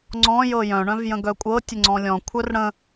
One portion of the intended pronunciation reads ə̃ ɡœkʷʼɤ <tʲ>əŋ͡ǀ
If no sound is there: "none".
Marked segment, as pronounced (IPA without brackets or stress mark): tʲ